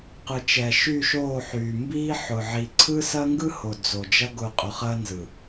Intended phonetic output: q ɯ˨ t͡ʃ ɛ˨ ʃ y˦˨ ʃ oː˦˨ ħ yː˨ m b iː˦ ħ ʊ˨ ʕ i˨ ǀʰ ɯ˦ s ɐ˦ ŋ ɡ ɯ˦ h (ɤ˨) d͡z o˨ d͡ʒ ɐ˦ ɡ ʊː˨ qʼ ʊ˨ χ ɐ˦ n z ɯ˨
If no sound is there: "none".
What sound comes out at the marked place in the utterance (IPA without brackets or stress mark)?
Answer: o˨